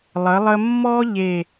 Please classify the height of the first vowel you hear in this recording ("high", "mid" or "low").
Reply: mid